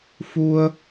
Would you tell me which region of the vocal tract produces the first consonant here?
lips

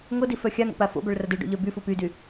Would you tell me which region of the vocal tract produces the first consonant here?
velum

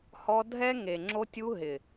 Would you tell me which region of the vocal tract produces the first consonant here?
throat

